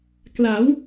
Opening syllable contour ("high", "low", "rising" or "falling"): rising